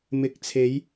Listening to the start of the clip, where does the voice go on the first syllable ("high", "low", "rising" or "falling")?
rising